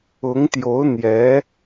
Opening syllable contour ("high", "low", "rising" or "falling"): rising